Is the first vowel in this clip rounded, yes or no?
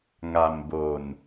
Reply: no